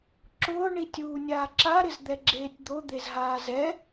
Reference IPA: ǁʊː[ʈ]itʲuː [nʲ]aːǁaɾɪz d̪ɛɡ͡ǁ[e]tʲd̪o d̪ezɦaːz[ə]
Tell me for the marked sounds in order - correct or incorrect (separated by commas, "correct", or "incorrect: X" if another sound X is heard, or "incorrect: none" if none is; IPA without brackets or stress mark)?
incorrect: ɳ, correct, incorrect: eː, incorrect: ɛ